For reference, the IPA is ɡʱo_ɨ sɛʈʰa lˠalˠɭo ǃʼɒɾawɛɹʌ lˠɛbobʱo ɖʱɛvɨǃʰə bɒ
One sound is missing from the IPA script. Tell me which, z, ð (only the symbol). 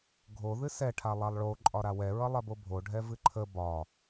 ð